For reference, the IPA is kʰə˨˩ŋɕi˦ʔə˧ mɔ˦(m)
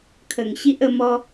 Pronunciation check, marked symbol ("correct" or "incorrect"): incorrect